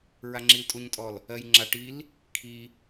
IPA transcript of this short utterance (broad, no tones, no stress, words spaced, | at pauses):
ɹaŋ͡ǁiltʼuɲtʼɔl | ɜjŋ͡ǁaʈ il | kʰi